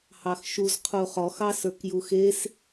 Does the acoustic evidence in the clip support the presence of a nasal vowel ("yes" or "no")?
no